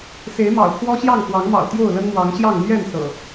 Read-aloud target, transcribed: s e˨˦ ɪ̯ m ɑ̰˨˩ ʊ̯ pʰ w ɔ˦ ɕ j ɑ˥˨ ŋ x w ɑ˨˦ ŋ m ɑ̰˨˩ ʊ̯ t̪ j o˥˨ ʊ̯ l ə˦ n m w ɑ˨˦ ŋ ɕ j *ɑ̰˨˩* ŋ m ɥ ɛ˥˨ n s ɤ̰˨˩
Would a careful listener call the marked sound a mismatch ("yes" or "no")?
yes